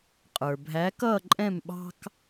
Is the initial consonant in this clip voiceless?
yes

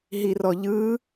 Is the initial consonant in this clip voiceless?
no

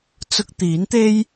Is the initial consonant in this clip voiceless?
yes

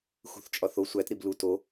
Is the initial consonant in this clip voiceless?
yes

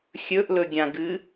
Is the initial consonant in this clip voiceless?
yes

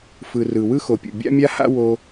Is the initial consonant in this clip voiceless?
yes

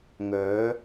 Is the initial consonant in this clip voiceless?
no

